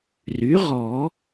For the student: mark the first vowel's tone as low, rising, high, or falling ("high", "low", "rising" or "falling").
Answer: rising